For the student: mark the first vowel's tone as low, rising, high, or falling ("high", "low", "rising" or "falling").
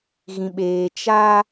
low